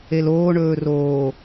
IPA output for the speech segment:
e l oː ɳ ɵː r oː

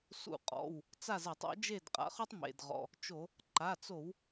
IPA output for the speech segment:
s ṵ˧˩˧ qʼ ɔ̰˩˧˩ w | t͡s a˥˨ z a˧˩˧ tˤ ɔ̰˩˥ d͡ʒ e˥˨ d qʼ a̰˩˥ χ u˥ tˤ m ḛ˩˧˩ d ʁ ɔ̰˩˧˩ | t͡ʃ o˧˩˧ | ǃ a˩˧˩ t͡s o˧˩˧ w

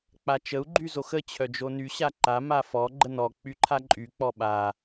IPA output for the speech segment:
k͡p a t͡ʃ ə u̯ ɡ͡ǃ y z o x ə t͡ɕʰ œ d͡ʒ o n y ɕ a ǃ a m a f ɔ ɡ͡ǃ ə n ɔ k͡p y ǃʰ a ǃʼ y k͡p ɔ ɓ a

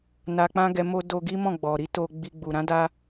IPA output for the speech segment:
n a˧ k͡p ã˦ ɡ ɛ˧ m o˦ d o˧ ɡ i˦ m ɔ̃˦˨ ɡ͡b ɔ˨ ɾ i˨˦ t o˧ ɡ͡b i˧ ɡ͡b u˨ ɾ ã˨˦ d a˧

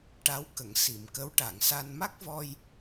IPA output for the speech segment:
ʈ a˧˥ w k ə˨˩˨ ŋ s i˨˩˨ m k ə˧˥ w ʈ a˨˩˨ ŋ s a˧ n m a˦˥ k̚ v ɔ˧ j

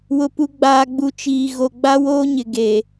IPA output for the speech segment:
w ʊ˨ p u˨ ɡ͡b aː˨ ɡ͡b u˨ t͡ʃ iː˨ ɣ o˨ ɡ͡b a˦ w oː˦ ɲ ɪ˨ ɡ e˨

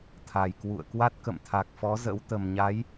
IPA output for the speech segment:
t̪ʰ a˨˩ j k w ṵ˧˨ ə̯ k w a˦˥ t̚ k ə̰˧˨ m t̪ʰ a˨˩ k̚ f ɔ˨˦ z ə̰˧˥ w t̪ ə˨˩ m ɲ a˨˦ j

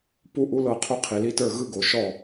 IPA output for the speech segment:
p u˧ ʔ u˧ l ɤ˧˩ qʰ u˧ qʰ i˩ l i˧ t ə˞˧˩ ɣ ɯ˧ ɡ o˩ ʃ ɔ˧˩

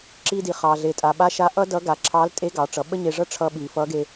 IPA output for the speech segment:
ǁ i˧ d i˩ χ ɑ˩ ɮ e˩ tʼ a˩ ɓ a˧˥ ʃ a˧˥ ʔ ʌ˥ d ʌ˧˥ ɡ a˩ ǁʰ ɑ˧˥ l tʼ e˧˥ ɡ ɑ˩˧ ʈ͡ʂ ʌ˩˧ ɓ ə˥ ɲ e˧ ʐ ʌ˥ ʈ͡ʂʰ ʌ˧ ɓ i˩ f ʌ˧˥ ɡ e˧

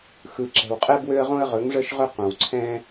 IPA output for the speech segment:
x ɯ˨ ǁ ɛ̤˨ w qʼ ɛ˦ b w ø˦ ə̯ ʁ õ˦ ə̯ ʁ ɵ˨˦ ŋ ʐ ə˦ ʃ ʁ ɵ˦ q õ˨ w ǀʰ ɛ̃˦

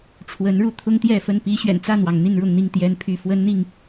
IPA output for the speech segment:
ʈ͡ʂʰ w ə˨˦ n ɻ u˥˨ t̪ʰ ʊ˦ ŋ t̪ j ɛ˥˨ f ə˥˨ n p i˦ ɕ ɥ ɛ̰˨˩ n t͡s ä˥˨ n̪ w ɑ˩ ŋ n̪ i˥˨ n ɻ ʊ˥˨ ŋ n̪ i˥˨ ŋ t̪ j ɛ˨˦ n pʰ y˥˨ f w ə˦ n n̪ i˥˨ ŋ

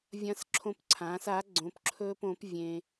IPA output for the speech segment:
vʲ ɐ̃˧˥ s ǁʰ õ˧ p ǀʰ ãː˩˧ s a˩˧ ɡ͡ǀ õ˩˧ p ǁʰ ɵː˧ p õ˩˧ p vʲ ẽ˩

